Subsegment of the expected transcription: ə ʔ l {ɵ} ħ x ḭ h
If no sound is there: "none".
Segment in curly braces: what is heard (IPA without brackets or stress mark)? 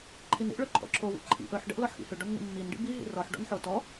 ɔ